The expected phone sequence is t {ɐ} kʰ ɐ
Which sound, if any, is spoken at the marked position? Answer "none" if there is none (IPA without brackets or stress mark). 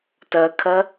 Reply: ɐ